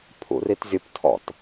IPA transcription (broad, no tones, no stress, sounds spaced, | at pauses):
pʰ ṵ r i t zʲ ʊ p tʰ ɔ̰ t